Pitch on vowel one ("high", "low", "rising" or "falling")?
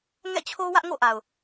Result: falling